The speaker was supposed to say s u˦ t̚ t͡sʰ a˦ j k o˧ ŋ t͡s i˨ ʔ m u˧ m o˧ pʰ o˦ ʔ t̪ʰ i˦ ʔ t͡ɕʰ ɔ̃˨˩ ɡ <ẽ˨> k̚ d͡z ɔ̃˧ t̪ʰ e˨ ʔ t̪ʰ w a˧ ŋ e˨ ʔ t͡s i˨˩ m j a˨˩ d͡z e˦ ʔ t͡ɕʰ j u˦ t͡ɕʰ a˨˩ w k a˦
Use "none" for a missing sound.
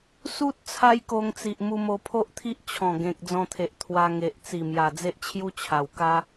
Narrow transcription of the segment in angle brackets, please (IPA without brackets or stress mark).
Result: ẽ˨